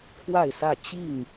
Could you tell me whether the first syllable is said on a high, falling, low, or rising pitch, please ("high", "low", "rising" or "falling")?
falling